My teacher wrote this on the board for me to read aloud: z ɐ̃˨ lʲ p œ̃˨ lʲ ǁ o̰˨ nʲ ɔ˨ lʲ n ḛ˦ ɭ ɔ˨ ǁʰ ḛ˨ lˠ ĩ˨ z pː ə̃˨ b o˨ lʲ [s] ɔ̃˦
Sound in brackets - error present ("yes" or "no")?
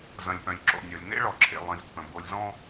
yes